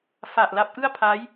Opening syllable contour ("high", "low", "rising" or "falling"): low